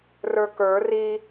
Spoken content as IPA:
r ə˞ k ə˞ r i

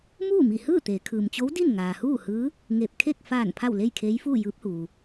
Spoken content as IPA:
m uː˥˨ m i˧˩ h ɯː˥˨ t̪ eː˩˧ kʰ ɯː˩ m t͡ɕ o˧˥ w d i˥˨ n ŋ aː˩ h uː˥˨ h ɯː˧˥ | ŋ e˧˩ p̚ kʰ e˥˨ k̚ f aː˧˩ n pʰ a˥˨ w l e˥˨ j kʰ eː˧˥ j f uː˥˨ j ɯː˧˥ p̚ h uː˩

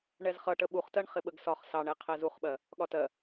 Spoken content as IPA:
ɳ ɛ z χ ʌ ʈ ə ɓ u χ t ɜ ɳ χ ɪ ɓ ə ɡ s ɒ χ s ɑ ɳ ɛ qʰ ɛ z u χ ɓ ɜ | ɠ ɒ t ɜ

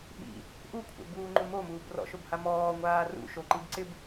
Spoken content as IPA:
ɓ ḭ | ʔ u kʷʰ ɛ̰ b uː ŋ͡ǃ u m o m uː b r ɔ̰ ʃ o b h a m ɔː ŋʷ aː r ṵ ʃ o ǃ i b ǀ ɪ b

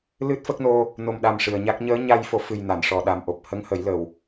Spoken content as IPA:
l ɨ˦˥ t̚ f ə˦˥ k̚ n o˧ | n o˨˩ m ɗ a˨˩ m ʂ ɨ˨˩ ə̯ ɲ a˦˥ k̚ ɲ əː˧˥ ɲ a˧ j f o˨˩˦ f ɨ˨˩ j n a˨˩˨ n ʂ ɔ˨˩ ɗ a˨˩ m ʔ o˨˩ p̚ h ə˧˥ ŋ h ə˨˩˦ j l ə˨˩ w

